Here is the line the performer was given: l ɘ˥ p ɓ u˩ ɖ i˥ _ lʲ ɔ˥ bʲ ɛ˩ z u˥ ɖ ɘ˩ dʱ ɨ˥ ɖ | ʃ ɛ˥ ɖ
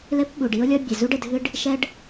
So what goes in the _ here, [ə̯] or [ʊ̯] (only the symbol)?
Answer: ʊ̯